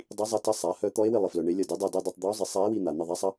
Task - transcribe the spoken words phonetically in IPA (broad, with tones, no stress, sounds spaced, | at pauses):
dˤ i˧˥ zˤ ɐ˧˥ t ɐ˧˥ sˤ a˩˥ h œ˧˥ t̪ ɔ˧˥ e̯ w ɪ˦˨ lˠ ɪ˨ f l œ˨ ɳ e˧˥ lʲ ɐ˦˨ d e˧˥ dˤ a˦˨ d i˦˨ dˤ u˦˨ tˤ d̪ ɔ˧˥ o̯ zˤ ɪ˩˥ sˤ a˧˥ e̯ w i˦˨ n̪ a˨ n̪ ɐ˦˨ ðˤ a˧˥ sˤ ɐ˧˥